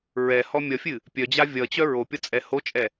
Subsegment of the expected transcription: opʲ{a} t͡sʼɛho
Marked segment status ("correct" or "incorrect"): incorrect